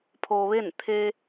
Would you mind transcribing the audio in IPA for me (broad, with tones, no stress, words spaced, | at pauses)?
pʰo˧ʋe˥˨n t̪ʰe˧